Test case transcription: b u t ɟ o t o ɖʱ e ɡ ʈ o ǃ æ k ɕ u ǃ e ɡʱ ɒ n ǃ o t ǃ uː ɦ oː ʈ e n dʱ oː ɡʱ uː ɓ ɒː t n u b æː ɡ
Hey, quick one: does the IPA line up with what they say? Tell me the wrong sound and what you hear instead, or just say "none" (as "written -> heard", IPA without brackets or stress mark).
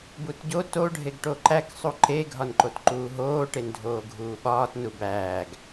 ɕ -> sˤ